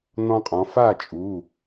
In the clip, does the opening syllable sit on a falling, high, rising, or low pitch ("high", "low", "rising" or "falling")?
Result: high